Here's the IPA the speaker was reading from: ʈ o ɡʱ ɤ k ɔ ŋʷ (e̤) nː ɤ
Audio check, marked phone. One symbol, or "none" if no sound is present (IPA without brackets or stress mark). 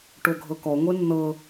e